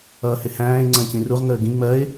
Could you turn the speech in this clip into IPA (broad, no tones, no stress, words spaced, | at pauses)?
ʌːhɪhæ̃ːɪ̯ ŋ͡ǀə̃ːcĩruʁ ŋəːɡĩ ŋ͡mɜɪ̯